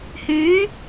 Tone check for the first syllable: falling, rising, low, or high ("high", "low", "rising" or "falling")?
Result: rising